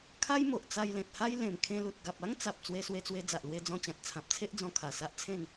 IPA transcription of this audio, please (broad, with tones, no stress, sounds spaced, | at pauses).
kʰ a˦ j m o˨ ʔ t͡s a˧ j l ẽ˨ t̚ h a˦ j l ẽ˨˩ m kʰ ẽ˧ l u˨ t̚ ɡ a˨ p̚ a˦ ŋ t͡s a˨ p̚ t͡s w e˧ s w e˧ t͡s w e˧ d͡z a˨ ʔ l w e˧ d͡z ɔ̃˧ t͡ɕ ã˨ t̚ t͡sʰ ã˨ p̚ t͡sʰ e˦ ʔ d͡z ɔ̃˧ kʰ a˨˩ s a˦ ʔ t͡sʰ ẽ˥˧ n